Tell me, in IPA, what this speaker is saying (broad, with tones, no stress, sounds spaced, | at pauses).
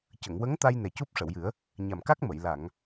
c ə˨˩˨ ŋ w ə˧˥ ŋ t̪ a˧ j n ɛ˨˩ c u˦˥ p̚ ʂ ə˨˩˨ w j ɨ˨˩˦ ə̯ | ɲ a˨˩ m k a˦˥ k̚ m ə˨˩˨ j l a˨˩˨ ŋ